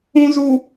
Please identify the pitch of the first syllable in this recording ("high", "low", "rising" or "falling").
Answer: low